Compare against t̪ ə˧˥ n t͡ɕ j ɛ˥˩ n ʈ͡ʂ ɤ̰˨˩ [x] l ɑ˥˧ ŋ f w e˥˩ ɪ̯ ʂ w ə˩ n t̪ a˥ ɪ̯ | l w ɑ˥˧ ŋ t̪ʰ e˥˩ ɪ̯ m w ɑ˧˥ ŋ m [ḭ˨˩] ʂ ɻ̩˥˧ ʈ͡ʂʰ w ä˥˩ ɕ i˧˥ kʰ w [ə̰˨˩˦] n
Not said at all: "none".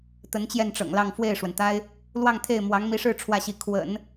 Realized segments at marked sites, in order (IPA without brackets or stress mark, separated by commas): ŋ, i˧˥, ə̰˨˩˦